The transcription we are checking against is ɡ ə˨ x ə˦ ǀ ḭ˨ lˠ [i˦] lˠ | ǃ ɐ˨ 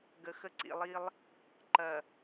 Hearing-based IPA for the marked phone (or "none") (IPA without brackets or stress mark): i˦